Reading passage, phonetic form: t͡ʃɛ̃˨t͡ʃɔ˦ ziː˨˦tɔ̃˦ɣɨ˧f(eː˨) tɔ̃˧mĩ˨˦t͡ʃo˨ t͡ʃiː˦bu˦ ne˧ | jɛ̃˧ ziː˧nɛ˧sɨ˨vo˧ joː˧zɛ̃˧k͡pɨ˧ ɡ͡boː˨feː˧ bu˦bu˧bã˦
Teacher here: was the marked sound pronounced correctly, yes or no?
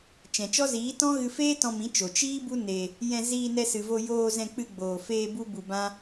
no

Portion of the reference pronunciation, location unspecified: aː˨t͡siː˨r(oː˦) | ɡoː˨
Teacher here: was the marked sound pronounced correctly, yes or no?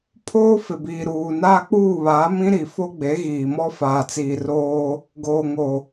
yes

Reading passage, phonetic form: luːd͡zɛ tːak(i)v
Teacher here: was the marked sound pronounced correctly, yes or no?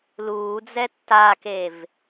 no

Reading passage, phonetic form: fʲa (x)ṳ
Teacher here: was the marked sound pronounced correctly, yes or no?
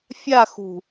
yes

